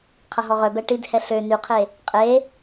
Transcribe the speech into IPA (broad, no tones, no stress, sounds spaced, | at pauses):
qʰ ɐ ɦ ɔ ʁ œ b ɛ ʈ i d h ɛ ɬ ø n y qʰ e | qʼ e